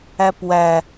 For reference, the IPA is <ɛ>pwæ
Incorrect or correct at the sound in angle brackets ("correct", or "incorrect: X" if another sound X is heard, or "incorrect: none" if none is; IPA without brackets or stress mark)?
incorrect: æ